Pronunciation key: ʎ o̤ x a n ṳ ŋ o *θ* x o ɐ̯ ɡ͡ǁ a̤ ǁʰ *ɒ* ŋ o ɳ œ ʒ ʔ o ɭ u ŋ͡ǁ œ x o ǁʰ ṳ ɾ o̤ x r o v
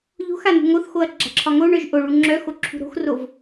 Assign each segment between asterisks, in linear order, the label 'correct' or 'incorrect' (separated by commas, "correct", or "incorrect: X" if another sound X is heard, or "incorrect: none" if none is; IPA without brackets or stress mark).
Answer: correct, correct